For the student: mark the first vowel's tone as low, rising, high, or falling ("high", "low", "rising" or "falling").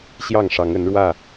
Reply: falling